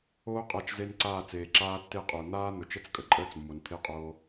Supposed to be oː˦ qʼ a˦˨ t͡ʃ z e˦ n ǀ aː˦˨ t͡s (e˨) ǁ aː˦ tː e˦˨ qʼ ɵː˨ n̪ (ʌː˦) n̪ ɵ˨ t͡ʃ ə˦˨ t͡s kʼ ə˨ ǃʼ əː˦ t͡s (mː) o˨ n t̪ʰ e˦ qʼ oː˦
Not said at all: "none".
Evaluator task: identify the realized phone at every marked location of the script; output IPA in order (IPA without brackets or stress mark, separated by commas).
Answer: eː˨, aː˦, mː